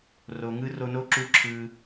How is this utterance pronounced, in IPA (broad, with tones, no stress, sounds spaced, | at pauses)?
r o˩ ŋ ɯ˧ r o˧ n o˥ ǁ u˧ ǁʰ ɯ˩